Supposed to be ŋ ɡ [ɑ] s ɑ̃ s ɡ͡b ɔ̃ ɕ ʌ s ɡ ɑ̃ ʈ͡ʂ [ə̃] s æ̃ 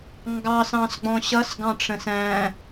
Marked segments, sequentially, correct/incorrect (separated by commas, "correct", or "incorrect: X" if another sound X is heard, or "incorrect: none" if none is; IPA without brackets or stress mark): correct, correct